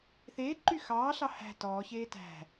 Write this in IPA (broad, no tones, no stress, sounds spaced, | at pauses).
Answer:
θ eː ǃ y x ɑː ɬ ɑ h æ̤ t ɔː ç eː t æ̤